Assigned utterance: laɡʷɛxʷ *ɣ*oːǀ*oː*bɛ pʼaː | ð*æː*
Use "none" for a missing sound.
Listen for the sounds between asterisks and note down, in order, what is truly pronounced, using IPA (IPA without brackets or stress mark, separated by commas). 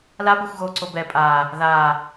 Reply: ɣ, o, aː